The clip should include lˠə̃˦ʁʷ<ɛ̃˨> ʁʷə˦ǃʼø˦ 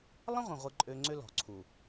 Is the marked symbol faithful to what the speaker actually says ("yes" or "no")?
no